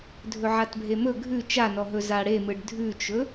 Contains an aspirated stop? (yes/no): no